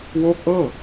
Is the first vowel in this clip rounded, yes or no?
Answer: yes